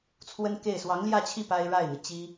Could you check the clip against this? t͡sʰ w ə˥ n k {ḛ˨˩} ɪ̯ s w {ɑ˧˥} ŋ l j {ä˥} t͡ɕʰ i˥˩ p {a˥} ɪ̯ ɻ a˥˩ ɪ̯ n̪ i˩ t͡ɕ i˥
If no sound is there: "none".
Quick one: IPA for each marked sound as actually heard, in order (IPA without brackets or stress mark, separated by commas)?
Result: e˥˩, ɑ˧˥, ä˥˧, a˥